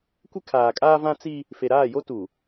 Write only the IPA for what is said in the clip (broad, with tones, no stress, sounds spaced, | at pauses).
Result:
kʷ ɪ˦ kʰ aː˨ kʼ aː˦ v ã˦ t͡s i˦ | f e˨ ɾ aː˦˨ j o˦ t u˨